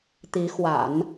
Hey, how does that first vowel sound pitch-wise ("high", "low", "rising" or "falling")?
rising